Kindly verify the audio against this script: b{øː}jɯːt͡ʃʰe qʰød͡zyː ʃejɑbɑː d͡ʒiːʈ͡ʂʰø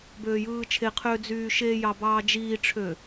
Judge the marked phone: correct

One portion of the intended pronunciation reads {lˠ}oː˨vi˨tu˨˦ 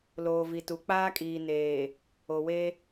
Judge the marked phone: incorrect: l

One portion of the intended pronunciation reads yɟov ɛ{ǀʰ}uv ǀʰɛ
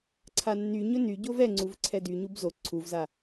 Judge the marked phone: incorrect: ŋ͡ǀ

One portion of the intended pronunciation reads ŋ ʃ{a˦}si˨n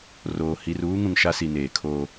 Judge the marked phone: correct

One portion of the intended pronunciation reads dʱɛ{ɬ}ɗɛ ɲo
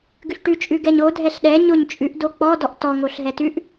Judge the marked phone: correct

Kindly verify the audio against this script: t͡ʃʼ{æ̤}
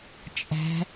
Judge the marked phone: correct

